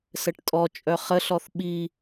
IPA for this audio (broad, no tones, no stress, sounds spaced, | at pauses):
s ə ʈ tʼ ɔ t͡ʃʼ œ χ ə ɬ ɔ θ ɓ i